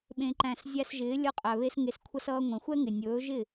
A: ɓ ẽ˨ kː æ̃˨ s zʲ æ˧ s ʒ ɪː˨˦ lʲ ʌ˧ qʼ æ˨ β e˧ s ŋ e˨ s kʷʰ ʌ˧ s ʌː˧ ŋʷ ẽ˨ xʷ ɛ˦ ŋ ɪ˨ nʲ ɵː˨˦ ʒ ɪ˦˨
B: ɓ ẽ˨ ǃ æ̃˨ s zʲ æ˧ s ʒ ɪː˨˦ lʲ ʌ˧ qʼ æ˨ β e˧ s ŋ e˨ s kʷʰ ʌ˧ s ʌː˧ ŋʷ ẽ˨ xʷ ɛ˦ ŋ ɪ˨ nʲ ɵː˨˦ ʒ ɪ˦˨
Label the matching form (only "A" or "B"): B